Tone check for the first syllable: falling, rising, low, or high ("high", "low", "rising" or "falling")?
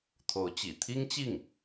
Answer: rising